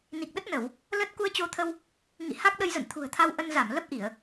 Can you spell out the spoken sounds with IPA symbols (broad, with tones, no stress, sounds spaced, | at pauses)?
n i˨˩ k̚ ɗ ə˦˥ t̚ n ə˧˩˨ w | l ə˦˥ t̚ k u˧ ə̯ t͡ɕ o˧ t̪ʰ ə˧ w | ŋ ḭ˧˨ h a˦˥ k̚ ɗ ə˧ j z ə̰˧˨ n t̪ʰ ṳ˨˩ ə̯ t̪ʰ a˧ w ʔ ə˧ n z a˧˩ m l ə˦˥ p̚ ʔ i˧˩˨ ə̯